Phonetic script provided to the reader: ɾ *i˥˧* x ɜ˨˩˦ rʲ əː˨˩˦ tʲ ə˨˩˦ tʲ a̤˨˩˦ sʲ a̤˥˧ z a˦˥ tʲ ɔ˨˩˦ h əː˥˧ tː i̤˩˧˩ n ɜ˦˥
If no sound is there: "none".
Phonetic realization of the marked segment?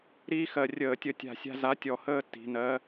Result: i˥˧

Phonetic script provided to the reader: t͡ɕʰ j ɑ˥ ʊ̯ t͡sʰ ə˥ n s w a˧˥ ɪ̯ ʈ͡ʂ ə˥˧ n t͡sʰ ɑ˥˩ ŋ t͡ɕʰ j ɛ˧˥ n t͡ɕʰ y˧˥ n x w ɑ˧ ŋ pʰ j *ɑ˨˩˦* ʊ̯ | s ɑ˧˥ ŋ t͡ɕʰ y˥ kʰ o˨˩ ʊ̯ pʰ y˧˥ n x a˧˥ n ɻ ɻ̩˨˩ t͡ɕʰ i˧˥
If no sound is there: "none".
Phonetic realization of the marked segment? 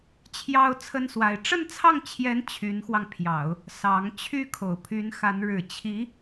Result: ɑ˨˩˦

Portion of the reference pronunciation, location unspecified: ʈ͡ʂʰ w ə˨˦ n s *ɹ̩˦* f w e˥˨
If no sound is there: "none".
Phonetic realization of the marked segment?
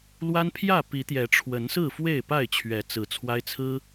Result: ɹ̩˥˨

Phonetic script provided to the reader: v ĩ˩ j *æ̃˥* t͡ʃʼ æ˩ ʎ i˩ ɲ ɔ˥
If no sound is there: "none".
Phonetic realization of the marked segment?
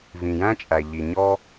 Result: æ̃˥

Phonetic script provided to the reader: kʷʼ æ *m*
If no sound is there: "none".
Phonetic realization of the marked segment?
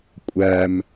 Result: m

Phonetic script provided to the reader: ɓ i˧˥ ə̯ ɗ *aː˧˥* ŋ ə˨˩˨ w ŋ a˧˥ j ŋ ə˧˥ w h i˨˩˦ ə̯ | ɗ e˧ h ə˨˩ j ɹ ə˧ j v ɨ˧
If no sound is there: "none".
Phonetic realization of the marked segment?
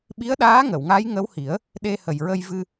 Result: aː˧˥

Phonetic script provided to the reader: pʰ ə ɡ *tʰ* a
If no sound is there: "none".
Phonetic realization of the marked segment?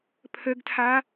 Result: tʰ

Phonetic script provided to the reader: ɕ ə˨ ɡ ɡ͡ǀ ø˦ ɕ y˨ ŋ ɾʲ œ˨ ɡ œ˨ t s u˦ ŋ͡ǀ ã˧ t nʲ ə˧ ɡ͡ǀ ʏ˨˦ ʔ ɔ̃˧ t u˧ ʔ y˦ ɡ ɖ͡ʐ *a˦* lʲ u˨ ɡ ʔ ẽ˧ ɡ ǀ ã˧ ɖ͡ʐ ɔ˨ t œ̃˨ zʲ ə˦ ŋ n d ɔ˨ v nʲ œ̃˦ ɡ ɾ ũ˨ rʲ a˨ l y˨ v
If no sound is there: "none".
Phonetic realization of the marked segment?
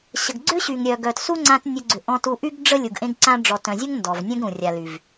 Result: ə˦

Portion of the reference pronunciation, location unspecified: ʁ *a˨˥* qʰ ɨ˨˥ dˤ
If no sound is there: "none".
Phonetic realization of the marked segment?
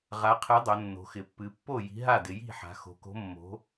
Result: a˨˥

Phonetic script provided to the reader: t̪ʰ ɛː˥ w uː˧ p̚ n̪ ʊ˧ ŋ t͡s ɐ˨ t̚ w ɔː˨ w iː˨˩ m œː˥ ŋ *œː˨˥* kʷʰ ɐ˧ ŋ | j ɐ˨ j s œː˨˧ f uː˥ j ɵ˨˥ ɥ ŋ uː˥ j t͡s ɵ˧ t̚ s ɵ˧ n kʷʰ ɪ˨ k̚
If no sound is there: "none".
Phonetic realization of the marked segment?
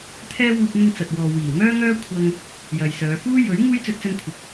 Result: œː˥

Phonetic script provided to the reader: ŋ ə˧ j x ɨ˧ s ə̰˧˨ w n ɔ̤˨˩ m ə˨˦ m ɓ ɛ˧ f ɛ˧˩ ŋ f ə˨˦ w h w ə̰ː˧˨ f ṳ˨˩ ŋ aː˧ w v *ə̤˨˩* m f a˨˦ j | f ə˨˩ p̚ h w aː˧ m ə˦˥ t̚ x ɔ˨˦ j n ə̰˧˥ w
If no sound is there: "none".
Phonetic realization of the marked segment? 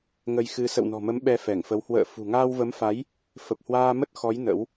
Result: ə˨˦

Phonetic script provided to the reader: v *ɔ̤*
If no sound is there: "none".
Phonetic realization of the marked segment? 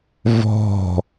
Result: ɔ̤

